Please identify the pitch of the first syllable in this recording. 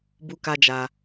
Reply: high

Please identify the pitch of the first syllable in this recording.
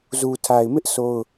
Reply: low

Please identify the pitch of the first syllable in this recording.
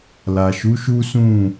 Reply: low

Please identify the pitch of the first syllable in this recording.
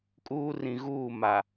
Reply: high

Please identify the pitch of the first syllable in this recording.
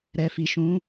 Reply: low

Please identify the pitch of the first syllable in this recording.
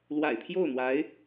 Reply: low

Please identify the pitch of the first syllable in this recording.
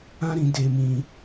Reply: high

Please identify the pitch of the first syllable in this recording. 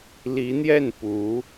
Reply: rising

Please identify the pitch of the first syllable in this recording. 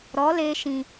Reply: rising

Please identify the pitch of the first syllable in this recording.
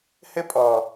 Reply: high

